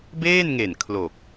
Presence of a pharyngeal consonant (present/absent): absent